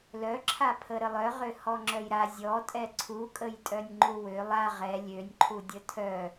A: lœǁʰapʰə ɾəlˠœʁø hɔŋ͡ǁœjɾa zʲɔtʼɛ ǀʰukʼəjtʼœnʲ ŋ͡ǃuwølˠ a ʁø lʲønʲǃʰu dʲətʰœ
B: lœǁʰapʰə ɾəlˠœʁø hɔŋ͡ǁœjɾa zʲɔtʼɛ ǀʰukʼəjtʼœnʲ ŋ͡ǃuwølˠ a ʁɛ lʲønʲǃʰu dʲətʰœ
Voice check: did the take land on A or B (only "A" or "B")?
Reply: B